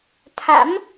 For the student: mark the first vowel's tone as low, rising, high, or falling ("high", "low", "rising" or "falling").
rising